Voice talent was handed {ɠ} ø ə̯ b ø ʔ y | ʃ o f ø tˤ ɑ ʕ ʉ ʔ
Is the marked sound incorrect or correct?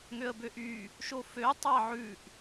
incorrect